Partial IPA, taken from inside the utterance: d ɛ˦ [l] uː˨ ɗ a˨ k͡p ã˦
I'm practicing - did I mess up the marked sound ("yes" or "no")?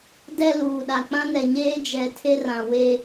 no